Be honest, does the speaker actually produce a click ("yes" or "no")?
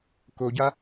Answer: no